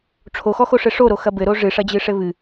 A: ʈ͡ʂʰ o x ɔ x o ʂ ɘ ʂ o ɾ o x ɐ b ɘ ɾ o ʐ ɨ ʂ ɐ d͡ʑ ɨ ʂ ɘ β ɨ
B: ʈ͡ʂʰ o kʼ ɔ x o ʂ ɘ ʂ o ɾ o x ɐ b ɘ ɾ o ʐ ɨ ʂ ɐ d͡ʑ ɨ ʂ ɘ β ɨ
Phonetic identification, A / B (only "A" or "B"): A